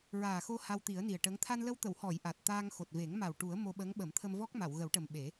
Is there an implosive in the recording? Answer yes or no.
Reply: yes